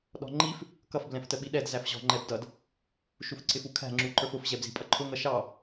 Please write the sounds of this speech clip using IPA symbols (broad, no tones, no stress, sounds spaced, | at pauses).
ɗ ɔ̤ ŋ͡ǃ i f | k ʌ f b l ɛ̃ f t ə ɓ i ɗ ɛ d z æ f ʑ ɔ̤ ŋ͡ǃ ɛ b d ʌ d | ʃ u f ǀ ɪ f u kʰ æ̤ ŋ͡ǁ u ǃ ə˞ f ʊ f ʑ ɛ b z i̤ pʼ ʌ ǃʰ ʊ ŋ ʌ ʃ ɑ